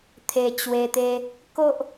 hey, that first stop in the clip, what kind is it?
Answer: aspirated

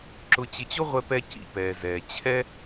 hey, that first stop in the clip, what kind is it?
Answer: click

